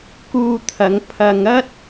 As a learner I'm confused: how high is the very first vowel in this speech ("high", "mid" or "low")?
high